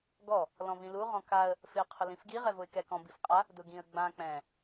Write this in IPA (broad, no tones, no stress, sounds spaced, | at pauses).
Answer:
ɡ ɔ | l ɔ̃ v ĩ l u ʁ ɔ̃ k a ə̯ | f ɪ ə̯ qʰ ʊ l ĩ f ɡ i ʁ ɛ v ʊ ɪ̯ k ɛ k ɔ̃ b i f qʼ a | d ʊ ɡ ĩ ə̯ ɡ͡b ã k͡p ɛ̃